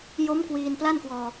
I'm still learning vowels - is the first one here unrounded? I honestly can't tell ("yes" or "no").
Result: no